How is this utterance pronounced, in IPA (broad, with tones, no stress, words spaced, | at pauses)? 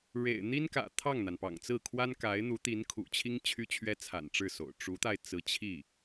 ɻḛ˨˩ɪ̯n̪i˥nkä̰˨˩ t̪ʰɑ˥˩ŋn̪a˩npɑ̰˨˩ŋt͡sɹ̩˥˩ kʰwa˥nka˧˥ɪ̯n̪u˧˥ t̪i˧˥nkʰṵ˨˩t͡ɕʰi˥ŋ t͡ɕʰy˥t͡ɕʰɥɛ˥t͡sʰa̰˨˩n ʈ͡ʂɻ̩˥˩so̰˨˩ʊ̯ ʈ͡ʂu˧˥t̪a˧ɪ̯ t͡sɹ̩˧˥t͡ɕʰi˥˩